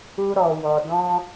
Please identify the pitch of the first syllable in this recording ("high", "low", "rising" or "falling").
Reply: high